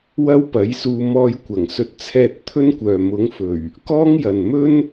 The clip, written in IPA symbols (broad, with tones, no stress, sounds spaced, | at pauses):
w ɐ˥ w p ɐ˨˥ j s uː˧ m ɔː˧ j kʷ ɐ˨˩ ŋ s ɵ˧ t̚ t͡sʰ ɛː˧ t̚ t̪ʰ ɵ˥ n kʷ œː˨ m ʊ˨˥ ŋ f ɵ˨˩ ɥ | k ɔː˥ ŋ j ɐ˨ n m ɵ˥ n